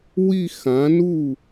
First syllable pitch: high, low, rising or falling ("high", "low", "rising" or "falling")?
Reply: falling